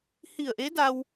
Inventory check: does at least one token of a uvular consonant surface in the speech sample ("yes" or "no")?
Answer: no